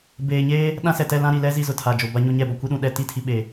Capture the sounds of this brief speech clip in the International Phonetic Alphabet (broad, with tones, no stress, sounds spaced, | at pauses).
b eː˨ ɲ eː˦ | ɗ ã˦ s ɛ˨ t ɛ˦˨ l ã˦ ɾ i˨ l ɛ˦ z i˦ z ʊ˨ tʰ a˨ d͡ʒ o˨ b a˦ ɲ o˦ ɲ ɛ˦˨ b ɔ˦˨ kʷ i˦ ɗ ũ˨ ɗ ɛ˦˨ t i˦ tʰ i˨ ɓ e˨